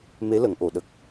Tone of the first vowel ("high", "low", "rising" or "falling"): rising